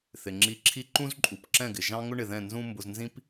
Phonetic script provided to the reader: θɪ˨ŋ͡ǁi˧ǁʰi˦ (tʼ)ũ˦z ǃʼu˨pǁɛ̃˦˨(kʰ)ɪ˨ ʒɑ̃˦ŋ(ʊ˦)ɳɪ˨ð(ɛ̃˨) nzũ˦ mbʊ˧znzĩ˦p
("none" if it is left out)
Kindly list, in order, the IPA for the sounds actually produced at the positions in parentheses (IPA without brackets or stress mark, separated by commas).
ǃ, ɡ, ʊ˦, ɛ̃˦˨